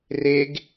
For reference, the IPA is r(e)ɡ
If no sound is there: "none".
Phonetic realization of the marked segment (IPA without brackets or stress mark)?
e